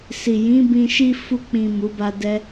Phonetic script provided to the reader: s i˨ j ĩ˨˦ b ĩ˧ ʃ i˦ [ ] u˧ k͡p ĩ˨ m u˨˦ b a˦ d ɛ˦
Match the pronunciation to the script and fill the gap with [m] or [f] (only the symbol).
f